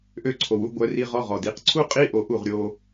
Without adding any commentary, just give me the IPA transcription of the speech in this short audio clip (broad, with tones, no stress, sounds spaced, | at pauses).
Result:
ʔ ø˧ ǀʰ o˨ w u˧ ɡʷ œ˧ r i˧ ʁ ɔ˧ ʁ ɔ˨ d i˨ q ǀʰ u˦ qʼ i˦ ʔ o˧ ʔ u˦˨ ʁ ɾʲ o˧